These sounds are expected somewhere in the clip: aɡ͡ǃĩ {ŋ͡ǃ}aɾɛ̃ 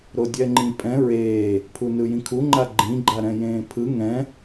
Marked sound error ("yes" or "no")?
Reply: yes